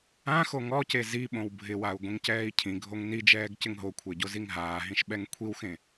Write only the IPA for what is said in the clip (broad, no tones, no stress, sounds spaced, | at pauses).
ã x o ŋ ɔ c e z i ɓ õ w bʱ ɪ w a u̯ ɡʷ ĩ ŋ c ɛː i̯ cʰ ĩ ɡʱ o ŋ n i d͡ʒ ɛː ɡ c ɪ ŋ ɦ o kʷʰ e ɟ o z i ŋ ɦ aː ɦ ĩ ʃ ɓ ɛ ŋ kʷʰ i w x ẽ